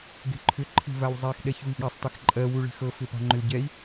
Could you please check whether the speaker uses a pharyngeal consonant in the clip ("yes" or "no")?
no